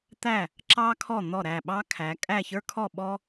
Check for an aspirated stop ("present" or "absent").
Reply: present